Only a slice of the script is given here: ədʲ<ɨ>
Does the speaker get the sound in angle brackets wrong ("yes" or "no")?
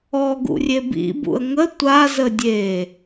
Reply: yes